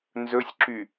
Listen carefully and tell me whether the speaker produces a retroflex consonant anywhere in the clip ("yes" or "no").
no